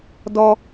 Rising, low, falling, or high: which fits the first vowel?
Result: high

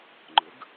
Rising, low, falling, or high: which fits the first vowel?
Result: rising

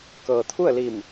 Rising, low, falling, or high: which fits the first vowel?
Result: low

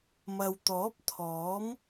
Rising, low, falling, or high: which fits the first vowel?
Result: low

